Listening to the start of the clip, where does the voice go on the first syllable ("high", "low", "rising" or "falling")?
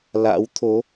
rising